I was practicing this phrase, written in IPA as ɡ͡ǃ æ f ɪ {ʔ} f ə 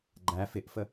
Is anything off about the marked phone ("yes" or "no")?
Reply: no